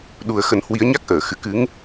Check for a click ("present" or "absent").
absent